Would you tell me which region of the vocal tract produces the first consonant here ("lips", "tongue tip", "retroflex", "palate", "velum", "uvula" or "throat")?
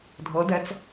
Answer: tongue tip